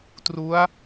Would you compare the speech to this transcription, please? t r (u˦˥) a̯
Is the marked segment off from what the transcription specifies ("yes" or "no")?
no